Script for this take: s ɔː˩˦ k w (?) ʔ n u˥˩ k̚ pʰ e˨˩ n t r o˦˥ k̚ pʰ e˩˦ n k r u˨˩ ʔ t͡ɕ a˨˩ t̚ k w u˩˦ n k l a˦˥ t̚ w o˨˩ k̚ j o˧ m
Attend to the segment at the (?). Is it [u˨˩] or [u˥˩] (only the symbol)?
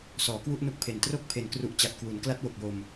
u˥˩